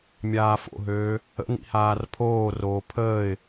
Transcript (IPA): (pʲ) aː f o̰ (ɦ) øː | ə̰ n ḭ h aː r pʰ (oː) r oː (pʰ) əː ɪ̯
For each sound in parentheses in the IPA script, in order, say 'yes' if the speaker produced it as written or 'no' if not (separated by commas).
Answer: no, yes, yes, yes